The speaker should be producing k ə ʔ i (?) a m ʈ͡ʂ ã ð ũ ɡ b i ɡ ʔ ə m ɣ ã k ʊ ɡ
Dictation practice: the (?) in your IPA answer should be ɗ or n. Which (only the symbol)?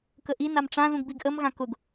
n